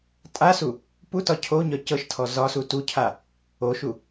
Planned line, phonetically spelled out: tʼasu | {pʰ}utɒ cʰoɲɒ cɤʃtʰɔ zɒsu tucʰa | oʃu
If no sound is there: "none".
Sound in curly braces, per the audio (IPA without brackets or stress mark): p